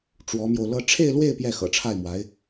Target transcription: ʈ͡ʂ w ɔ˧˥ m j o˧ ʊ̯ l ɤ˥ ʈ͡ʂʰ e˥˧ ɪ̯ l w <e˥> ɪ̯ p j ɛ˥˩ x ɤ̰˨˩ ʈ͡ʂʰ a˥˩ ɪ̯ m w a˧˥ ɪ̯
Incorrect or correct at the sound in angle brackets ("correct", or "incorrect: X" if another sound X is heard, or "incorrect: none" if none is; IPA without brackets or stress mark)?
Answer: incorrect: e˥˧